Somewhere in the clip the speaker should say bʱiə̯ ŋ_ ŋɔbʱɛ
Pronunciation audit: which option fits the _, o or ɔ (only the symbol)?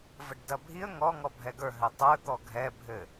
ɔ